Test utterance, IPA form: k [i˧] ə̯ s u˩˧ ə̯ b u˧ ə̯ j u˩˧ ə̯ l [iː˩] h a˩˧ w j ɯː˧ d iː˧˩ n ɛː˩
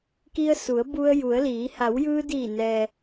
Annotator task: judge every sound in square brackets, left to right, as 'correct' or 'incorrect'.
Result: correct, incorrect: iː˩˧

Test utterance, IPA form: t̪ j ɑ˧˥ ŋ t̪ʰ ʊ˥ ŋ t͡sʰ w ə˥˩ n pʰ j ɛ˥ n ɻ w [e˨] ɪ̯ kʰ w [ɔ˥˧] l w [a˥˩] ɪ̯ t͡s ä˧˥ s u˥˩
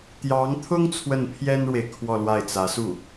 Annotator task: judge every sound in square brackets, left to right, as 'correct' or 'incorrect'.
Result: correct, correct, correct

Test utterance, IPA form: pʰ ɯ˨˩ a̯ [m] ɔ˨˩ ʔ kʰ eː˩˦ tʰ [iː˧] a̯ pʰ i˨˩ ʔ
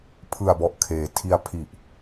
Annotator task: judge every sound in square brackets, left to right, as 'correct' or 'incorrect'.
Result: incorrect: b, incorrect: i˧

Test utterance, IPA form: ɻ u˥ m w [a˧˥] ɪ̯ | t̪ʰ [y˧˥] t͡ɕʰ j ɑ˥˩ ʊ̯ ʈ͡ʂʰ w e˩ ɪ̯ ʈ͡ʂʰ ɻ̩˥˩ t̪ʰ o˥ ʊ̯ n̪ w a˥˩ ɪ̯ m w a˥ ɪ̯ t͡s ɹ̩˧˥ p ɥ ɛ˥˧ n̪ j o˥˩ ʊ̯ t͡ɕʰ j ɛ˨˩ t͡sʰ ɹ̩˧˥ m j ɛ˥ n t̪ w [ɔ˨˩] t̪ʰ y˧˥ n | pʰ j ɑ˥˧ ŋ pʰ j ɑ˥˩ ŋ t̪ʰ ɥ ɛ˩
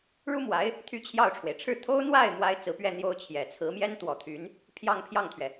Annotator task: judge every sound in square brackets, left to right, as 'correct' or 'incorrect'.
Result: correct, incorrect: y˥˧, correct

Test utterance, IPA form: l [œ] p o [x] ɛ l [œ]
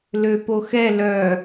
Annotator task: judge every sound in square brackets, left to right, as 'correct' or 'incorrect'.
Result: incorrect: ø, correct, correct

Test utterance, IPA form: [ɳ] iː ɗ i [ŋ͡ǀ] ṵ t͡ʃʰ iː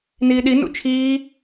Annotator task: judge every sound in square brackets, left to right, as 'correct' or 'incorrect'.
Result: incorrect: n, incorrect: n

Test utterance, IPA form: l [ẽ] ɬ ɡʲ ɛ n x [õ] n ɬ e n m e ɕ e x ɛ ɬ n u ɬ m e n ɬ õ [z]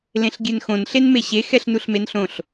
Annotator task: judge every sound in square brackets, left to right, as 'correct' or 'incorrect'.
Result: correct, correct, incorrect: ɬ

